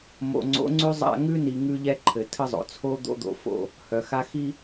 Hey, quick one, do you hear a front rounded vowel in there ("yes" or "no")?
yes